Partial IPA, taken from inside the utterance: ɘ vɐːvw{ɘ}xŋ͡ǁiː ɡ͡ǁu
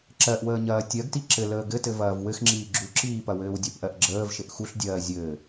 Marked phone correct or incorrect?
correct